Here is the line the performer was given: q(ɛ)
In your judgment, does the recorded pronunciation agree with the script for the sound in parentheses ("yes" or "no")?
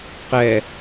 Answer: yes